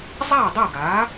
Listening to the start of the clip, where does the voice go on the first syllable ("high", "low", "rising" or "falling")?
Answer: falling